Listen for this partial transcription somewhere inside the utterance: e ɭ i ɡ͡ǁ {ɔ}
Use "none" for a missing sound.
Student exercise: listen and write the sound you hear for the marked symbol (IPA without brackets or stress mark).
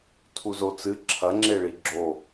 o